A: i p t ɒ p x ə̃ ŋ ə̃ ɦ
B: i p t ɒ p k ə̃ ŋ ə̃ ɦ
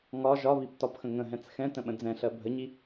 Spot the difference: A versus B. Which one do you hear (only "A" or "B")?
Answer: A